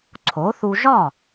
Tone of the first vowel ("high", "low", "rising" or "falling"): rising